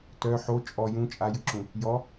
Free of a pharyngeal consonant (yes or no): no